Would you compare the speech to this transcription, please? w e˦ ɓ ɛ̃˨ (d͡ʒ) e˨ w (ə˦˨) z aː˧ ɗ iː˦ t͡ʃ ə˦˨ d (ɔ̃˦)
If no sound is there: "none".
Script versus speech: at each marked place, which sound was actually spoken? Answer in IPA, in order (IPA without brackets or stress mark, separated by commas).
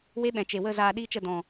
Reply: t͡ʃ, ə˦˨, ɔ̃˨